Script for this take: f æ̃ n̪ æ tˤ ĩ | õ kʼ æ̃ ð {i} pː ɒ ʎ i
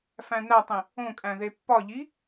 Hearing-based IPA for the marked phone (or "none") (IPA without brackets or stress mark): e